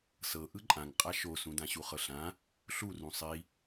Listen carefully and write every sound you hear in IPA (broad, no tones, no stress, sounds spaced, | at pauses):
s ɤ ʔ ɯ ǃʼ ã ŋ qʼ a ʃ o s ũ d ã ɕ u χ ɤ ɬ ã | ɬ u r ũ sˤ i